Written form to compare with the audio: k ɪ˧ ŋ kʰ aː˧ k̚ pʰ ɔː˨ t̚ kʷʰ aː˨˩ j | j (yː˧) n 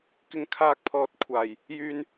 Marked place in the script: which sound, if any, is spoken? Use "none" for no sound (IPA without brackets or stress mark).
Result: yː˧